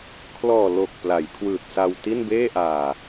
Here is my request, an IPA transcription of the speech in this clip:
kʰ l ɔː˨˩ l o˨˩ k̚ p l a˩˦ j kʰ w ɯː˨˩ t̚ s a˧ w t i˥˩ n b eː˥˩ ʔ aː˨˩

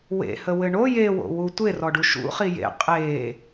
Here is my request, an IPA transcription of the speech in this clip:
w ḛ h ə w ɘ ɳ o j e w o̰ w u tʷ e r ɔ ɖ u ʃ ṵ χ i j ḛ qʼ e

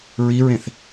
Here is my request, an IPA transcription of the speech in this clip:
ɹ i ɹ ẽ θ

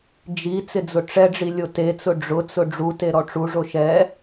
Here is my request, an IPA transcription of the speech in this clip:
d͡ʒ i t͡s ɪ d͡z ʊ ʈ͡ʂ ɛ ɖ͡ʐ i lʲ o t e t͡s ʊ ɖ͡ʐ ʊ t͡s ʊ ɖ͡ʐ u t e ɾ ɔ ʈ͡ʂ u ʐ o ʃ ɛ

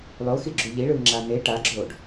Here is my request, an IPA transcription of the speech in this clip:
lˠ o x i ɡ͡ǁ u ʎ i ɭ ɯː ŋ͡ǁ aː n e ʈ a ɡ͡ǁ oː ɖ

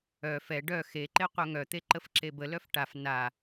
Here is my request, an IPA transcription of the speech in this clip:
œ f ɛ ɖ œ x e ǃ e qʷ œ ŋ œ t̪ e ǃ ə f ǁ e b ə l œ f ʈ a f n a

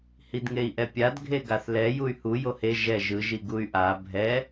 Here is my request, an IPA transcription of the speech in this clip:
h i d ŋ e i̯ ʔ ɛ pʲ a d ɡʱ e ɡ a θ l ɛ j u y̯ h u j o h e ʒ ɛ ʒ ɯ ʒ i ɡ u y̯ ʔ a bʱ ɛ

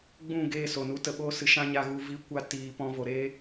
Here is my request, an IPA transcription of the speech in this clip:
ɡ͡b ũ˦˨ ɡ eː˧ s o˨ n u˧ t ə˧ ɓ oː˦ s ɨ˧ ʃ ã˦ ɲ a˧ ɣ u˧ v i˧ kʷ a˧ t iː˧ p ɔ̃˦ v o˧ ɾ eː˦

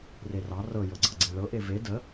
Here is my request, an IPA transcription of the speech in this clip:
r e r ɑ r ɤ j ɤ ɡ͡ǀ ɤ ɡ͡ǀ e ɭ ɤ ʔ e v e d ə

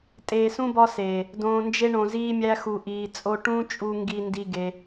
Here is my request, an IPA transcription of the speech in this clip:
tʼ eː˨ s ũ˧ b ɒ˧ s eː˨ | d õː˨ n d͡ʒ e˧ ɳ õ˨ z iː˧ mʲ æ˧ x u˨ ʔ iː˨ t͡sʼ o˧ ʈ ũ˦ t͡ʃʼ u˧ ŋ ɡ i˧ n d i˧ ɡ e˧

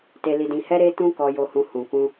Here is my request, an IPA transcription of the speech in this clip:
t e˧ l i˧ d ĩ˧ h ɛ˦ ɾ e˦ t ũ˦ k ɔ˧ j o˧ h ũ˧ h ũ˨ k ũ˧

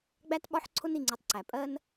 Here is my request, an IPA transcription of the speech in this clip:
ɡ͡b æ˦ t ɓ ɒ˦ ħ ǀʰ ʊ˦ n i˧ ŋ͡ǀ i˧ tˤ ǀ æ˨ pʼ ɜ˦ n

